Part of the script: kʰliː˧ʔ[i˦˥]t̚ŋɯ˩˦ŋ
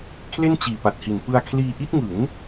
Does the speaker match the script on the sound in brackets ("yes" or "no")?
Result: yes